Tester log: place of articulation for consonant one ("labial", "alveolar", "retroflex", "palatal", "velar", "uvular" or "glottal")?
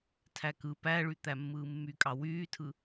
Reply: alveolar